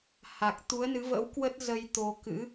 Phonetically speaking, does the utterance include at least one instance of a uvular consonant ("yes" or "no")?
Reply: no